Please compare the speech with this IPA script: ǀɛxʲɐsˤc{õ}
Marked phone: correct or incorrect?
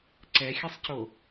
incorrect